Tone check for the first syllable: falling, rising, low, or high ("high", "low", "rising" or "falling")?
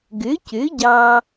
rising